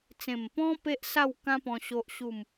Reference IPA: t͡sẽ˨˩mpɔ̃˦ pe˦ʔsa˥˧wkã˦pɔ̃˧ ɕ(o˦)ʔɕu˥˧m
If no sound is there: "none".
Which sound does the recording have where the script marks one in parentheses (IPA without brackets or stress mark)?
o˦